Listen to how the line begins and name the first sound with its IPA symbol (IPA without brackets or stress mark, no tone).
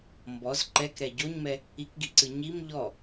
m